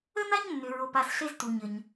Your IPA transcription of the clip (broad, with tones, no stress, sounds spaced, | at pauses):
ə˥ n a˥ ɲ nː ʏ˧ ɹ o˧ p a˧ s ɬ e˥ z t u˧ ɲ ə˧ ɲ